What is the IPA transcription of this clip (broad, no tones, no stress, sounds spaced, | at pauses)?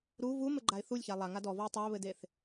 ɾ u v u m ɘ ɡ͡ǃ a ɪ̯ θ u lʲ ç a lˠ a ŋ a d ɔ v ɔ ʊ̯ tˤ a ə̯ β ɘ d e θ